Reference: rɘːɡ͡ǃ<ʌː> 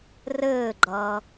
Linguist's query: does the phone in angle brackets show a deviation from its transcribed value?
no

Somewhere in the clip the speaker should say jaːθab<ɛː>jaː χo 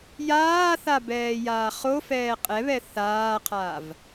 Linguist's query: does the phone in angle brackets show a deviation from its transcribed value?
no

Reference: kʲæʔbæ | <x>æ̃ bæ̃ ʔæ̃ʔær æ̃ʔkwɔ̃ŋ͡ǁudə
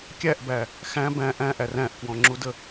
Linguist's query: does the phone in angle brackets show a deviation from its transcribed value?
no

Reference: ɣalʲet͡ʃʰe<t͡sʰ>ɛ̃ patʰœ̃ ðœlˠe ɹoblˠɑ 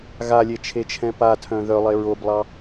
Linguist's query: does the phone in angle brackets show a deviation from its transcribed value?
yes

